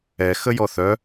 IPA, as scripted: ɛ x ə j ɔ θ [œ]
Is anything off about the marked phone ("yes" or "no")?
no